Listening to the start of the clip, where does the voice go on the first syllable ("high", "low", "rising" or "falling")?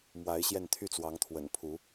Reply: rising